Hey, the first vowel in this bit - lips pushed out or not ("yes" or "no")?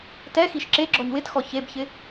no